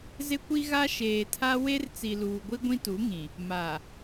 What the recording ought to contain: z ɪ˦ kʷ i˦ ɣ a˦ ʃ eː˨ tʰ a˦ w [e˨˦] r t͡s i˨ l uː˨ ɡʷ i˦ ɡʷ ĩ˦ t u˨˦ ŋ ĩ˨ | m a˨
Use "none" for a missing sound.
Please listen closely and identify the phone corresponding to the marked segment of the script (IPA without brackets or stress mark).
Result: e˦